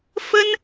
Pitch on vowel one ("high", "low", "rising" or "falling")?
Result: high